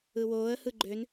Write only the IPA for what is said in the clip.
ɯ w oː ə̯ h ɯ ɡ͡ǃ ø n

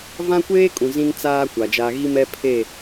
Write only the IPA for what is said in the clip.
v ã˦ kʷ eː˦ kʼ ũ˨ z ĩ˦ n t͡s aː˦ kʷ a˨ d͡ʒ aː˦ ɣ i˦ m ɛ˦ pʰ e˦˨

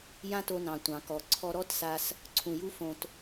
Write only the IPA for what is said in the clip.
j ã˦ t o˧ n ɑ̃˨ tʷ ɑ̃˨ k ɔ˨ ǀʰ ɔ˧ ɾ ɔ˦ t s a˧ s | ǀʰ ũ˨ j u˧ f õ˧ t

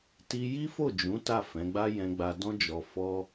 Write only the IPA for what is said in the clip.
t i˧ j i˦ f o˦˨ d͡ʒ ũ˨˦ t a˦˨ f ɛ̃˨˦ ɡ͡b a˦ j ɛ̃˧ ɡ͡b a˧ d ɔ̃˦ d͡ʒ ɔ˧ f ɔ˦

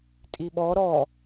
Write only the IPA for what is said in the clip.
tʼ i ɓ ɔ ɾ ɔ

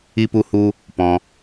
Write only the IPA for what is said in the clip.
i˦ p u˦ h u˦ | p ɔ̃˧

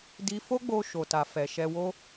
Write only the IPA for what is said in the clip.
d i˧ f o˦ ɡ͡b o˧ ʃ o˨ t a˨ f ɛ˨ ʃ ɛ˧ w o˦

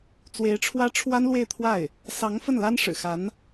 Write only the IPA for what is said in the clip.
t͡s w e˧˥ ɪ̯ ʈ͡ʂʰ w ä˥ ʈ͡ʂʰ w a˥ n l w e˥˧ ɪ̯ t̪ʰ w a˥˩ ɪ̯ | s ɑ˧˥ ŋ f ə˥˩ n l a˥ n ʂ ɻ̩˨˩ x a˧˥ n

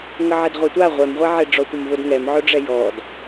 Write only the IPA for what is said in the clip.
ŋ ə ʕ ɛ d ʁʷ ɛ tʷ a ʁʷ ɛ m ʁʷ ɛ ʕ e ɖ͡ʐ ɔ tʷ ə m v ʊ d ŋ ɛ m ʕ ʊ ɖ͡ʐ ɛ j ɔ d

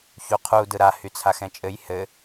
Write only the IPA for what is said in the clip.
ç u qʰ u d ɯ ɾ a h y t͡sʰ a x ɛ̃ t͡ʃʼ ɘ j h ɘ

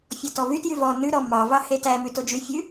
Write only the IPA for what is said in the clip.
fʲ ɔ t ɔ v y t j y v ɔ n ʉ ɾ ɔ m ɑ v ɑ h e t æ m ʉ t o d͡ʒ y fʲ ʉ

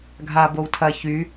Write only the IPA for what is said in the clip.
ɡʱ a b o w tʰ ɐ ç y

